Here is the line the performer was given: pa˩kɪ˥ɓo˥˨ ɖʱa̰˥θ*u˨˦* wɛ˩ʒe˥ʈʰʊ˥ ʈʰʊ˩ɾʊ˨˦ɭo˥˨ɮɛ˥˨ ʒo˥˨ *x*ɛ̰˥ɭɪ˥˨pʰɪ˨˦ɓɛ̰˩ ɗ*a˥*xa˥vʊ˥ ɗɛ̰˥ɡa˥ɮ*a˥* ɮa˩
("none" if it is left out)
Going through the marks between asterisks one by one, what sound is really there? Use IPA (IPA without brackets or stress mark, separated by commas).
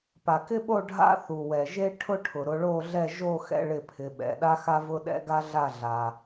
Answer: u˩, x, a˥, a˥˨